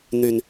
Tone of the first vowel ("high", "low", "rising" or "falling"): low